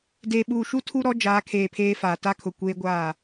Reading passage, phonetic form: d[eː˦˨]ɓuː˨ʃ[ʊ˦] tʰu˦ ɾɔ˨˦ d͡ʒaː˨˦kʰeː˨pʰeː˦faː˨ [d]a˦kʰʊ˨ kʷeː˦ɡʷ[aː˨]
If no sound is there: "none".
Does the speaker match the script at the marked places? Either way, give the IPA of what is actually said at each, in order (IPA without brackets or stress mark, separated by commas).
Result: eː˨, u˦, t, aː˦˨